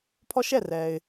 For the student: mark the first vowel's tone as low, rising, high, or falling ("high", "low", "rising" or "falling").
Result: high